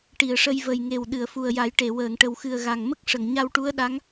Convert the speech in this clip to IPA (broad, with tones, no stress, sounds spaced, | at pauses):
ʈ i˨˩˨ ə̯ ʂ ə˧ j v ə˨˩ j ŋ e˨˩ w ɗ ɨ˨˩˨ ə̯ f u˨˩ ə̯ j a˨˩˦ j ʈ e˨˩˨ w əː˨˩˨ ŋ ʈ ə˨˩ w x ɨ˨˩ ə̯ ɣ a˨˩ ŋ m ə˦˥ k̚ ʂ ə˨˩˨ ŋ ɲ a˧ w ʈ u˧˥ ə̯ ɗ a˧˥ ŋ